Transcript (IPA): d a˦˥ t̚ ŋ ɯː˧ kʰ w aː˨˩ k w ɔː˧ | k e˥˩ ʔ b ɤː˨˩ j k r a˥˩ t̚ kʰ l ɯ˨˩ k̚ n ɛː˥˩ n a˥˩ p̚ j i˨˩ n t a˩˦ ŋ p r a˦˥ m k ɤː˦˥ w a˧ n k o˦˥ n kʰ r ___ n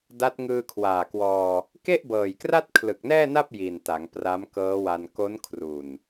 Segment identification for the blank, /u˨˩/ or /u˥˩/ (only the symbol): u˨˩